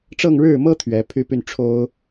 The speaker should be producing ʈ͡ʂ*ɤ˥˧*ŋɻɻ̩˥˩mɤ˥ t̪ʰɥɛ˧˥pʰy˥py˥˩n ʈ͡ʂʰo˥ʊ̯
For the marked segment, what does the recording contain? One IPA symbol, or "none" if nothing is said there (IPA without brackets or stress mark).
ɤ˥˧